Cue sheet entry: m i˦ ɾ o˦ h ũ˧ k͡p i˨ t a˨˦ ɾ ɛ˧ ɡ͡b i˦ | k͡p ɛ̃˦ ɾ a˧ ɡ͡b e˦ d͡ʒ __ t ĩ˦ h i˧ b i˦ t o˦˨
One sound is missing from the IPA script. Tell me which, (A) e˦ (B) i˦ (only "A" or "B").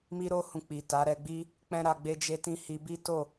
A